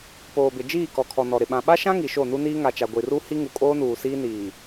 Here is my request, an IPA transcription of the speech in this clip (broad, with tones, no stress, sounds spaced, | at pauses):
p oː˨ b ɪ˨ d͡ʒ iː˦˨ k ɔ˨ kʰ ɔ˨ n ɔ˨ ɾ ɪ˨ ɓ ã˨ ɓ a˦ ʃ ã˦ ŋ i˨ ʃ o˦˨ n u˦ n iː˦ ŋ a˨ t͡ʃ a˨ ɡʷ i˨ r u˦ h i˦ ŋ u˨ kʼ oː˦ n uː˨ s iː˦ n iː˨